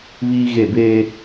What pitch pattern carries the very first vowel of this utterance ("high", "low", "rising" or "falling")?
high